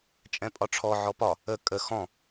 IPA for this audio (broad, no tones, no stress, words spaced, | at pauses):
t͡ʃʼɛ̃pʼɒʈ͡ʂʰɔ ʕɔpɒ | ə kʼə xɔ̃